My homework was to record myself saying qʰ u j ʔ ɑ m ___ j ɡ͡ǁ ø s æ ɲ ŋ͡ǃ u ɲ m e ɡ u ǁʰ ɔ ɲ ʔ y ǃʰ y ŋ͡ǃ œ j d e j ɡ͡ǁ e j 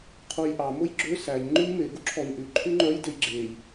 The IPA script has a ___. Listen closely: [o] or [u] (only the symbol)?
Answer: o